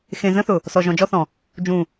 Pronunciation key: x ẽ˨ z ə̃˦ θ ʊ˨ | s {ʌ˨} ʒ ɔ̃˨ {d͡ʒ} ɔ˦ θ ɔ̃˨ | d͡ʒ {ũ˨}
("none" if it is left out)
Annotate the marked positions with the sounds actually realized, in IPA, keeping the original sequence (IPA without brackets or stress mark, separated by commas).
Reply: ɔ˨, d͡ʒ, ũ˨